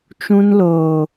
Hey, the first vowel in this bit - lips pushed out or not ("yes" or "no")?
yes